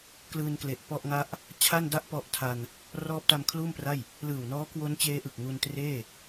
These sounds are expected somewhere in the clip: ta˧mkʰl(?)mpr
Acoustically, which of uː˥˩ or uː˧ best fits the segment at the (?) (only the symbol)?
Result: uː˥˩